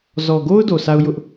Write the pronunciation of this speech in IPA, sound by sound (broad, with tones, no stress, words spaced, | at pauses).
zɔ˨ɡo˦ʊ̯ do˨sʰa˦ʊ̯ jʊ˦ʔ